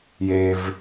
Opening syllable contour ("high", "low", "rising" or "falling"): low